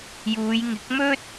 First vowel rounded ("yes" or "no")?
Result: yes